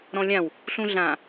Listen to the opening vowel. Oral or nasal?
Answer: nasal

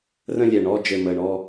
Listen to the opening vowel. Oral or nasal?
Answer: nasal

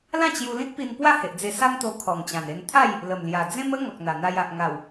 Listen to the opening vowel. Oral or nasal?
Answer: nasal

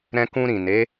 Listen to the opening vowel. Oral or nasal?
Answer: nasal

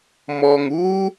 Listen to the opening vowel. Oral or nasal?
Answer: oral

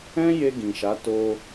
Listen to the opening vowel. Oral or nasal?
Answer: nasal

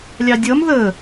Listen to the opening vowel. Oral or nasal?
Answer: oral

